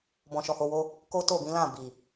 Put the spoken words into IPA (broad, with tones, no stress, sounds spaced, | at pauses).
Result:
b ɔ̃˨ ʃ ɔ˨ h o˧ w o˦ | k o˦ t o˦˨ b ĩ˨˦ l ã˦˨ b i˨